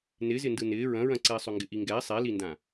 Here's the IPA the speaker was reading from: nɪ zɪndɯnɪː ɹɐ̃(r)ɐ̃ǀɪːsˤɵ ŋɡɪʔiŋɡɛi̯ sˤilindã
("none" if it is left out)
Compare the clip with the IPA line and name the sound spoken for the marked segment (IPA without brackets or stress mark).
ɹ